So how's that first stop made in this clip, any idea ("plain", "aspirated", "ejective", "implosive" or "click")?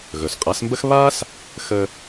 ejective